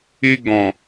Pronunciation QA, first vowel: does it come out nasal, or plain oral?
oral